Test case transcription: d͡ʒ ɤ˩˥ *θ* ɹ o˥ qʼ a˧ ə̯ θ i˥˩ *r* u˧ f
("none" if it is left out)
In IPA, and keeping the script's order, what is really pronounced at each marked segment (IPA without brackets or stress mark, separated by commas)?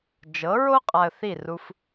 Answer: none, r